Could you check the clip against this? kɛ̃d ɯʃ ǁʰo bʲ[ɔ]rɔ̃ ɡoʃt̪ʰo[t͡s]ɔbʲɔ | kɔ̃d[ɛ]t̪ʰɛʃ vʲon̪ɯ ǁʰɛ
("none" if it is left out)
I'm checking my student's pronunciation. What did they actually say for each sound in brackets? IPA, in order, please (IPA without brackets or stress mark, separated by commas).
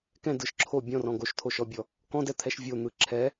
ɔ̃, ʃ, ɛ